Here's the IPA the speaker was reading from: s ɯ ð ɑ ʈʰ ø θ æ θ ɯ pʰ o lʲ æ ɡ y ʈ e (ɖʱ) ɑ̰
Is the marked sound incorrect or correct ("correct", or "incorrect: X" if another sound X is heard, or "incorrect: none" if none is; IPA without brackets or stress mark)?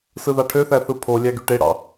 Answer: incorrect: ɽ